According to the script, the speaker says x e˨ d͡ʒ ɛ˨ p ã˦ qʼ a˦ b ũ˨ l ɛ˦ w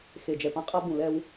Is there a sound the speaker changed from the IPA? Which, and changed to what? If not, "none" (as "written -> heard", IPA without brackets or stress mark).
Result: none